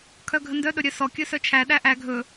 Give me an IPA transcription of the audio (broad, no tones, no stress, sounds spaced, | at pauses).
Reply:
kʰ œ ɡʱ ə n d œ ɗ ɵ ɾʲ œ s ɔ kʲ ɵ s œ t͡ʃʰ æ ɗ æ ʔ æ ɡʱ ɵ